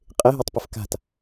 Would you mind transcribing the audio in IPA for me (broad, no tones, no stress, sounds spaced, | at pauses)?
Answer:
qʼ ɪ ɦ e tˤ p ɪ f k a̤ t